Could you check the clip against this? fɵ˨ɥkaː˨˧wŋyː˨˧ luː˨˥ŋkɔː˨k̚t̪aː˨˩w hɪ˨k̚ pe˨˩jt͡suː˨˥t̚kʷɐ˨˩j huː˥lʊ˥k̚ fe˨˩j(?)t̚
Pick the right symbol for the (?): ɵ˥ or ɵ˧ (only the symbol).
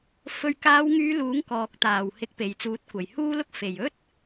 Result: ɵ˥